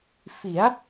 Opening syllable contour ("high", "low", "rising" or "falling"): rising